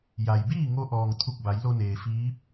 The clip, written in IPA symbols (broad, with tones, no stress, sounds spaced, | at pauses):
j a˩ j b iː˥˨ ŋ o˧ ʔ ɔː˩ ŋ t̪ʰ u˧˩ k̚ b a˩˧ j l o˧ n eː˩ f iː˧˥ p̚